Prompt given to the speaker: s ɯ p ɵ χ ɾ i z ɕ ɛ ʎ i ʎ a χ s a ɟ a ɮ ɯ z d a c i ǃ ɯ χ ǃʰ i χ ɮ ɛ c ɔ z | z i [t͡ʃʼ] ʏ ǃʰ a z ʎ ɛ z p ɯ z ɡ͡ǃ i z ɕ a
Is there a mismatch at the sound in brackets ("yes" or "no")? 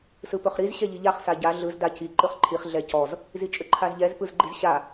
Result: no